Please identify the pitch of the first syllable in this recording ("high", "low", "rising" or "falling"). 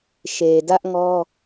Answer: low